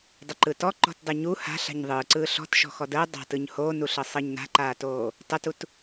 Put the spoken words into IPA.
dˤ ə ǃ ɯ t ɔ ǃ ɔ̤ t dˤ ɯ ɲ u h a̤ ɬ a̤ ɲ ðˤ ɯː ǀ ɯː ɬ ɔ̤ t ʃ ɔ̤ x ɔ d əː dˤ a̤ t ɯ ɲ h oː n u ɬ ɤ sˤ ɤ ɲ n a̤ ǃ aː t oː | tˤ ə t u t

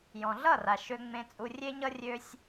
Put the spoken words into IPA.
j ɔ̃˨ ɮ ʌ˦˨ r a˨ ʃ ø˧ ŋ͡m ẽ˧ t͡sʼ u˧ rʲ e˦ ɲ ʌ˦ rʲ ø˦ sʲ

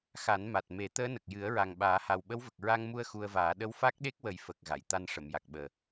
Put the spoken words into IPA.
x a˨˩˦ n m a˨˩ t̚ m e˨˩˦ t̪ əː˧˥ n ə˨˩ k̚ j ɨ˨˩˦ ə̯ ɹ a˨˩ ŋ ɓ aː˨˩˦ h a˨˩ w ɓ ə˧˥ w v ə˨˩ k̚ ɹ a˧ ŋ m u˧ ə̯ x u˧ ə̯ v aː˨˩˦ ɗ ə˧˥ w f a˦˥ k̚ ɗ e˦˥ k̚ w ə˨˩ j f ə˨˩ k̚ ɣ a˨˩˨ j t̪ a˧ n ʂ ə˨˩˨ m j a˨˩ k̚ ɓ əː˨˩

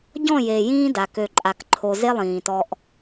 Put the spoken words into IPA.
ɟ ɔ̃˦˨ j e˨ j ĩː˦ d a˨ k ø˨ ǃʼ a˨ k ǃʰ o˨ z e˦ lˠ ĩː˨ t ɔ˦ ʔ

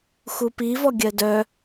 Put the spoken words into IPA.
x u p i v ɔ ɡʲ ɜ d œ

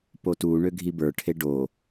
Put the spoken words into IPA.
p o t u ɳ ø ɡʱ i b ə˞ ʈʰ e ɖ o

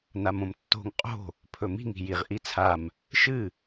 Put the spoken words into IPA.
n a m õ m tː o̤ ŋ qʼ o̤ | pʰ ɵ m i̤ ŋ i̤ j i ʁ ʔ i t͡sʰ a m | ʃ ɨ

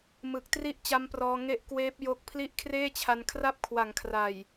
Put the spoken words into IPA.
m ɯ˨˩ k̚ t r i˥˩ ʔ t͡ɕ a˦˥ m p r ɔː˧ ŋ e˥˩ ʔ k w eː˦˥ p̚ j o˦˥ k̚ pʰ l i˦˥ ʔ kʰ r eː˥˩ t͡ɕʰ a˧ n kʰ r a˥˩ p̚ kʰ w a˩˦ ŋ kʰ r a˨˩ j

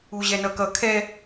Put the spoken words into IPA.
u ʑ ɛ n ʌ k ʌ kʰ ɛ

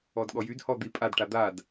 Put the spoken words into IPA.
ɔ d ɠ ɔ j y d h ɔ d̪ i pʼ a d ʈ a d̪ a d

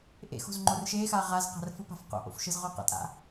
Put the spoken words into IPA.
ʔ ḛ x o̤ z ŋ͡ǃ o r ʃ e x a ʁ a z q a̤ r f ɯ p a̤ f q o̰ ʔ o̰ f ʃ ɯ z ʁ o q a̰ tʼ a̰

